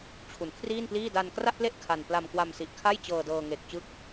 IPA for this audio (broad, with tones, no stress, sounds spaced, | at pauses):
t͡ɕʰ u˩˦ n kʰ r iː˥˩ n p l iː˥˩ d a˧ n k r a˥˩ ʔ p l e˥˩ ʔ kʰ a˧ n p l a˧ m k w a˧ m s i˨˩ ʔ kʰ a˥˩ j t͡ɕ ɤː˧ d ɤː˧ ŋ e˨˩ k̚ t͡ɕ ɯ˦˥ k̚